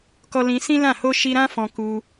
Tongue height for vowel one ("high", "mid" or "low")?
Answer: mid